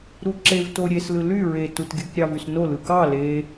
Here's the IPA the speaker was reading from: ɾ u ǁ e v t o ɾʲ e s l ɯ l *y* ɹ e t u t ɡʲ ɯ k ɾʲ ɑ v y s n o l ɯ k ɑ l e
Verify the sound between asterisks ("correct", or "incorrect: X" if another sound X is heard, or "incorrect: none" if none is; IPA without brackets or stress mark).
correct